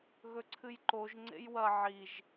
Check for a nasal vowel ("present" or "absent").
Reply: absent